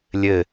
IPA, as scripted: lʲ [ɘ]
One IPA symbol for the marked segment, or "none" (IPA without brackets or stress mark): ɘ